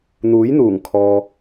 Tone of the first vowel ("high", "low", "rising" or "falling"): rising